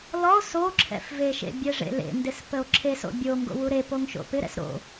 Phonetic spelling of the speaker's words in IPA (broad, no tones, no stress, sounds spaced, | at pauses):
l ɔ o̯ s o ǁʰ ɛ̰ f v e ʃ ḛ bʲ ɛ ʐ ḛ l ḛ n d ɪ s p ə o̯ ǁʰ e s o̰ bʲ o ŋ ɡ o̰ w u ɾ e p o ŋ ʃ o̰ p ɪ ɾ ɛ̰ s ɾ o̰